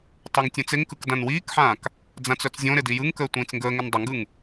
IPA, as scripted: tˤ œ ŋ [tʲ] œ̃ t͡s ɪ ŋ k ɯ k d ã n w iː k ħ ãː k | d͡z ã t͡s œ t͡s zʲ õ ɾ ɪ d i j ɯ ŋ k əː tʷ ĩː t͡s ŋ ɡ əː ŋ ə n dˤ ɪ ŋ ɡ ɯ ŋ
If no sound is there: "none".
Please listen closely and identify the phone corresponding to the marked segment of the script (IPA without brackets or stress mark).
tʲ